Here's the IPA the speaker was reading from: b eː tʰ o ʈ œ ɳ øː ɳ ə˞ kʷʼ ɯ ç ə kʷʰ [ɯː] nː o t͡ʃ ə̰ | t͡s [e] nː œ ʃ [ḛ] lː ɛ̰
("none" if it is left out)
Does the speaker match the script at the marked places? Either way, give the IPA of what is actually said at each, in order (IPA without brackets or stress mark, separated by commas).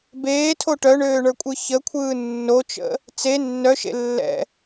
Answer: ɯː, e, ḛ